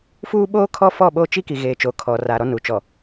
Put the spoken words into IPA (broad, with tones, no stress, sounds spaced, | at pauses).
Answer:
f uː˦ ɓ oː˦ kʰ ɔ˦ f ɔ˦˨ ɓ oː˦ t͡ʃ i˦ k i˨ ɣ eː˨ t͡ʃ o˨ kʰ ɔ˨ r a˨ ɾ ɔ˦ n u˨ t͡ʃ ɔ˨